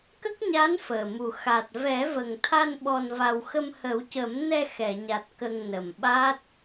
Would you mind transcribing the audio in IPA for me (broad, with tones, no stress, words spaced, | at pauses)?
kə˦˥k̚ɲa˧˥n fəː˨˩mu˨˩ xa˨˩t̚ vɛ˨˩˦və˨˩ŋt̪ʰa˧n ɓɔ˧nva˧w xə˧mhə˨˩˦wcə˨˩˦mnɛ˧ xɛ˨˩˨ɲa˨˩t̚ kə˧ŋnə˨˩mɓa˦˥t̚